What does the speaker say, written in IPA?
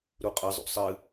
ɾ u qʼ ə zˤ ṵ sˤ ɨ

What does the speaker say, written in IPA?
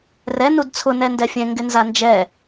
r ɛ n u d t͡sʰ ʊ n ɛ n d ɛ fʲ ɛ̃ ŋ ɡ ɪ n z a n d͡ʒ ɛ

